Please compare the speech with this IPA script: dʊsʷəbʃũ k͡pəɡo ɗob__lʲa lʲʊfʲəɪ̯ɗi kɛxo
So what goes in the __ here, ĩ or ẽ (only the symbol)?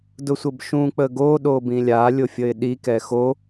ĩ